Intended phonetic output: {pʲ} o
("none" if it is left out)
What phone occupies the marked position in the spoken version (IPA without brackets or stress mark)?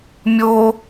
mʲ